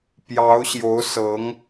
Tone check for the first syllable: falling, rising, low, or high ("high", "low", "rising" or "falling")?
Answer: rising